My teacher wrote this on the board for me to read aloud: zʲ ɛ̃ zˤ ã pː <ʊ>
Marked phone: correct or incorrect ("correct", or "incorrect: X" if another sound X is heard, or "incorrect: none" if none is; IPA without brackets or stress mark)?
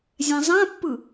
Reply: incorrect: ɯ